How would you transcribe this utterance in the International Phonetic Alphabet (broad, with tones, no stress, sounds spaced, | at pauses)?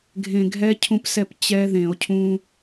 ɡʱ ẽ˧ ɡʱ ɛ˦˥ cʰ ũ˦˥ p s ɛ˥˩ p t͡ɕ ɛ˦˥ ð ẽ˧˩˧ o̯ cʰ ũ˧